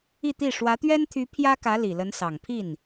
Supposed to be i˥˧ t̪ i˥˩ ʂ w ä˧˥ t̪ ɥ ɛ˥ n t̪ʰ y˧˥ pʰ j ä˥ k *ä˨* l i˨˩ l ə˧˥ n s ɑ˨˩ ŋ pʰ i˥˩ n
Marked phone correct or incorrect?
incorrect: ä˧˥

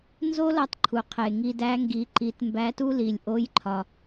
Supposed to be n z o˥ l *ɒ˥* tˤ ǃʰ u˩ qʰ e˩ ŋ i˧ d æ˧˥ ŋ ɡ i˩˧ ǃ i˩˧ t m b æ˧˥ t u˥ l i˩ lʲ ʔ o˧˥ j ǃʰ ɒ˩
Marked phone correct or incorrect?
incorrect: ɒ˧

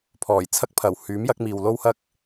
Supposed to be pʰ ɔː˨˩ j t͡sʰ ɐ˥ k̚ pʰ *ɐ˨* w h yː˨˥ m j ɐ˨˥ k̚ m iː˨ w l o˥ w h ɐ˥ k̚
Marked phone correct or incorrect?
incorrect: ɐ˨˩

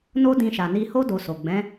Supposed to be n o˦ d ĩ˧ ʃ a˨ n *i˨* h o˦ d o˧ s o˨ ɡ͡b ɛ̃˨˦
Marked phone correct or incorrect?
incorrect: i˧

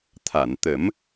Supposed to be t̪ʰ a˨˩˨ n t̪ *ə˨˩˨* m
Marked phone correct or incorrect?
incorrect: ə˨˩˦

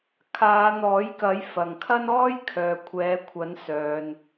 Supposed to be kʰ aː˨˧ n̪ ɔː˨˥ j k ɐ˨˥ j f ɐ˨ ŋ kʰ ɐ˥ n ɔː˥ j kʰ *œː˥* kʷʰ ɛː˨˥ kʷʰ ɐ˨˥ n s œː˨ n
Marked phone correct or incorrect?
incorrect: œː˨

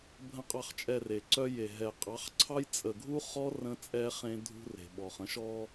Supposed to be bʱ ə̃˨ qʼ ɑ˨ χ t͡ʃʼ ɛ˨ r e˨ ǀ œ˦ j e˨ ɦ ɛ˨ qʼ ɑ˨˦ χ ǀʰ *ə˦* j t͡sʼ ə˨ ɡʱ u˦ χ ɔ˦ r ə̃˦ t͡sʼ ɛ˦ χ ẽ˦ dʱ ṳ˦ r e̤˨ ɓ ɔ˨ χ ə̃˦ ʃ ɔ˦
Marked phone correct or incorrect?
incorrect: ɑ˦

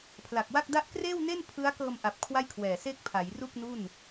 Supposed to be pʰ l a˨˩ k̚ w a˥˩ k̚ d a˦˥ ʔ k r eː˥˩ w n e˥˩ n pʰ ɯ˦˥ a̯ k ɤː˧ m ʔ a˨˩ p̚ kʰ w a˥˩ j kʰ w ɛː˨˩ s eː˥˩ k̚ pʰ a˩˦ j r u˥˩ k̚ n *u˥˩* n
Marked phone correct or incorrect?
correct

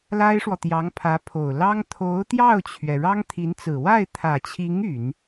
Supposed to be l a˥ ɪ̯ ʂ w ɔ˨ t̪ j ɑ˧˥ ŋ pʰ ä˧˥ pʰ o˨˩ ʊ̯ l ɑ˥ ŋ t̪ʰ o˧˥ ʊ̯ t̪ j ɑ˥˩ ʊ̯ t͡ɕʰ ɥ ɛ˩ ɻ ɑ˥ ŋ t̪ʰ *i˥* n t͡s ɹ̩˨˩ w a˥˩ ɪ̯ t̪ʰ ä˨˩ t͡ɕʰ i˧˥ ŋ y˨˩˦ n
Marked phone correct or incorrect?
incorrect: i˧˥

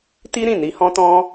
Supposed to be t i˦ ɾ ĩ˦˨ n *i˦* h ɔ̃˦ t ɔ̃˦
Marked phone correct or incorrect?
incorrect: i˧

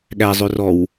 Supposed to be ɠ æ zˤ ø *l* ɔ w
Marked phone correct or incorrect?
incorrect: r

